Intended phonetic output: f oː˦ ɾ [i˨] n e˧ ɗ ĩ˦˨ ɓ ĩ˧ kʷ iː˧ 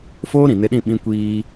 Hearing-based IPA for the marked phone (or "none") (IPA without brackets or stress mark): ĩ˨